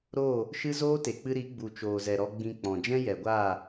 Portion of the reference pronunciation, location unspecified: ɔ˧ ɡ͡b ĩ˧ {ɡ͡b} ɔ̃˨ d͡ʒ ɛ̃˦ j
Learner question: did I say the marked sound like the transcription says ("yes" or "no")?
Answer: no